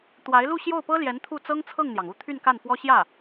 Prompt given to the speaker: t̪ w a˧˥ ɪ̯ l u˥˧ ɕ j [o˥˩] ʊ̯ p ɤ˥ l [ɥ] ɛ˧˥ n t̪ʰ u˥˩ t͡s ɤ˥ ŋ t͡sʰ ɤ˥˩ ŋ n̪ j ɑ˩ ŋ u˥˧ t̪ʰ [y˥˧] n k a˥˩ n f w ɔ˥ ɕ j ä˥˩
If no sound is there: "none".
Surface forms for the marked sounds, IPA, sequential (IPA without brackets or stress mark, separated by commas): o˥˩, j, y˥˧